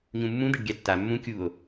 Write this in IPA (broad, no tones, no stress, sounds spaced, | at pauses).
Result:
ɲ ũ mː ũ d̪ ɛ ɖ ɡʲ a tː a mː ũ kʲ u o̯